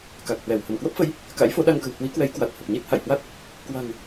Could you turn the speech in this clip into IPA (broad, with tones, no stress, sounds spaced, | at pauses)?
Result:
k a˨˩ k̚ h w ɛ˧˩ w h ə˧˩ m k w ə˦˥ p̚ f ə˨˦ j | k a̰˧˥ j f o˨˦ ɗ a˧ ŋ k ə̤˨˩ w h w i˨˦ k w ɛ˨˦ j k w a˨˩ t̚ h ə˨˩ p̚ ɲ i˦˥ t̚ h a̰˧˨ j h w a˦˥ t̚ | k w a̤˨˩ ŋ